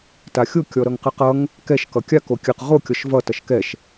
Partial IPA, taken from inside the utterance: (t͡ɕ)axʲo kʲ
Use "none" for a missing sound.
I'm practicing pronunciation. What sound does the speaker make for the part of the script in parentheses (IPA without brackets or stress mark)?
t